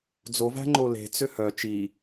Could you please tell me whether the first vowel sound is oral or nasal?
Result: oral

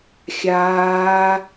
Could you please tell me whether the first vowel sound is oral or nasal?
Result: oral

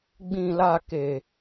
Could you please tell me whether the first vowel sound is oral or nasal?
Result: nasal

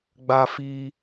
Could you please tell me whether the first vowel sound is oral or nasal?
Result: oral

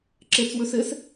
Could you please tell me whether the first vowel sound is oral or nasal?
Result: oral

